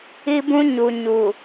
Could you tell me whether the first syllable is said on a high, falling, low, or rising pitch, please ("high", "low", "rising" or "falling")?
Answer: high